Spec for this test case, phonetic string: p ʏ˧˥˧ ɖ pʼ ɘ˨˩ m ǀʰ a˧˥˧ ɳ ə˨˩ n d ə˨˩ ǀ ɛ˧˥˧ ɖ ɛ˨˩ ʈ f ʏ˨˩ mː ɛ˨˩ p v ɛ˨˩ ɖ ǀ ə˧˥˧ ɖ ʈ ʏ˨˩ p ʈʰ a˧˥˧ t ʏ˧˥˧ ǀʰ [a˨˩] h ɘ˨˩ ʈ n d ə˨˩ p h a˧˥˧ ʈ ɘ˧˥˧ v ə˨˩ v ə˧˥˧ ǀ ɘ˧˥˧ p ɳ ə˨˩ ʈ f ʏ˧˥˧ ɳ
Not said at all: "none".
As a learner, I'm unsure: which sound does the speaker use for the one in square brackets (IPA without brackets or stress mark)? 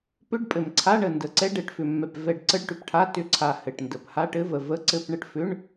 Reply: a˨˩